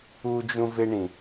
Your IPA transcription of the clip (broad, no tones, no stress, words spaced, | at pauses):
ud͡ʒũveɳĩ